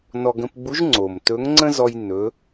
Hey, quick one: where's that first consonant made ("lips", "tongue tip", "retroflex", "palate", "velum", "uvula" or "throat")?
tongue tip